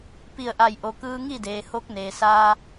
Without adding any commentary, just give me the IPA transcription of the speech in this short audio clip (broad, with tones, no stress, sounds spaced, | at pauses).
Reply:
p i˧˩ ə̯ ʔ a˧˩ j ʔ o˩ k ɯː˧ ŋ i˥˨ d eː˩ h o˧˥ k̚ n eː˩ s aː˧